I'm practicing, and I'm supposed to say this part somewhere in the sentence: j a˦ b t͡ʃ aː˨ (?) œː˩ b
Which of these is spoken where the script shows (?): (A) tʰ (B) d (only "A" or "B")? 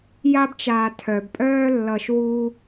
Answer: A